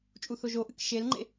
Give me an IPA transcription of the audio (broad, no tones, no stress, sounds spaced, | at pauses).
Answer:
t͡ʃʼ u θ o ʒ o ʔ ɨ k ʃ e l ŋ͡ǃ ḛ